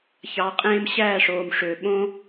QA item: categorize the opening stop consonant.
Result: ejective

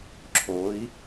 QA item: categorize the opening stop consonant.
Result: click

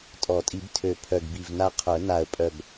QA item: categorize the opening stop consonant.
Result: ejective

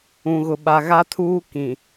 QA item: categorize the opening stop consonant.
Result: implosive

